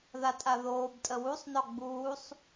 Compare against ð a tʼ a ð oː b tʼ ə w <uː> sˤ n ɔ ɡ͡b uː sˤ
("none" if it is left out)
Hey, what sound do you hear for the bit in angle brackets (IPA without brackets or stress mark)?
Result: u